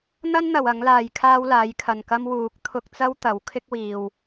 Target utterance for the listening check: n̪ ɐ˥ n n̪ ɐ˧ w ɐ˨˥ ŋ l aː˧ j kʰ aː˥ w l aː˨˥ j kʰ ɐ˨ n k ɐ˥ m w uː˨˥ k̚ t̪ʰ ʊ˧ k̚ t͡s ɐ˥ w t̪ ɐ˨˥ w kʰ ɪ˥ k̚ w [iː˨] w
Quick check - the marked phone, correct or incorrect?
correct